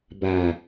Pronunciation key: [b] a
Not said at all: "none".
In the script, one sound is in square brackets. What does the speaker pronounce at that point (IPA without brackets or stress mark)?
b